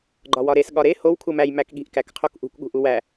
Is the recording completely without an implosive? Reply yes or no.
no